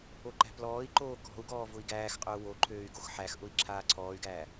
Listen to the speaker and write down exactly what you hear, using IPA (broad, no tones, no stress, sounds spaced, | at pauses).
o ǃ æ̤ p l ɔː i̯ ǃ oː k ɔ̤ u̯ ɡ ɔː v ʊ i̯ ɡ æː x qʼ ʊː w o ǃʰ øː y̯ ɡ o x ħ æ x ʔ ʊ i̯ ǁʰ aː ǀʰ ɔː y̯ ɡ æː